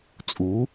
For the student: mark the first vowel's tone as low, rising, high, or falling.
rising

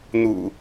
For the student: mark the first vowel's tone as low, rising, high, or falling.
low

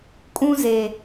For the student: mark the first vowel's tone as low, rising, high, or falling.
high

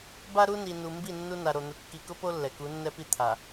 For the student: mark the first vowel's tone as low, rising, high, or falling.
high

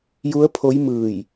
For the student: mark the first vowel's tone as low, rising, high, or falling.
rising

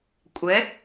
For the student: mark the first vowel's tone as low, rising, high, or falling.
rising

